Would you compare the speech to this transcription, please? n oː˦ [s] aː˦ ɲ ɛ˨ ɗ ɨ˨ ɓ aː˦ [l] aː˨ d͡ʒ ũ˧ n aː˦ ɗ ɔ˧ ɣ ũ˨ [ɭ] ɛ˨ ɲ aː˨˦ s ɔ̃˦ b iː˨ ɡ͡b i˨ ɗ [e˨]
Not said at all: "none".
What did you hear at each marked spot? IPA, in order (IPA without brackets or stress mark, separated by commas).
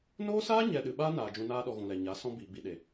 s, n, l, e˨